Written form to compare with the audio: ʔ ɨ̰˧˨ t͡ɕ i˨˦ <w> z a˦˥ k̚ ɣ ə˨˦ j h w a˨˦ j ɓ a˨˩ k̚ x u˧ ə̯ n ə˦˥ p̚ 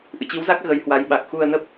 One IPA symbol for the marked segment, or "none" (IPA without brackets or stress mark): w